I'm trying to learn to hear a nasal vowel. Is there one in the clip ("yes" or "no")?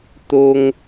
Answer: no